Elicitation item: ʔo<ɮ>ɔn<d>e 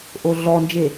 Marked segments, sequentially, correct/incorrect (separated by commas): correct, incorrect